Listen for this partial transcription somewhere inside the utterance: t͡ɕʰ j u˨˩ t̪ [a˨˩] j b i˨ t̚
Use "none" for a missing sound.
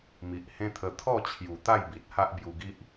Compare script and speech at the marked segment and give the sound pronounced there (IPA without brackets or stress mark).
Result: a˥˧